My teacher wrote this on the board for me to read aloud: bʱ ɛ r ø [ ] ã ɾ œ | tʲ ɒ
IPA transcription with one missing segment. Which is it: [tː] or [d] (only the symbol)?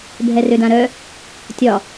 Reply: d